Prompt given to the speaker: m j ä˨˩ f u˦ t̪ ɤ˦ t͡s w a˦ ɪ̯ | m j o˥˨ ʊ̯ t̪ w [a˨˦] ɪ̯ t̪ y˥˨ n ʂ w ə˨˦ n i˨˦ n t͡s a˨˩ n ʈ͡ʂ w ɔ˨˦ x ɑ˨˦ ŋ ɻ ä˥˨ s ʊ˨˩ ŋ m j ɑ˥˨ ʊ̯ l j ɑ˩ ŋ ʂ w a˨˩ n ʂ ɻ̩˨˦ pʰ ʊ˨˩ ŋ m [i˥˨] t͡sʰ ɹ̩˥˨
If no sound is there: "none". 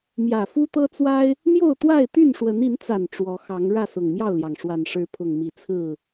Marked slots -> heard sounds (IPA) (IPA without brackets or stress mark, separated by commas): a˥˨, i˨˦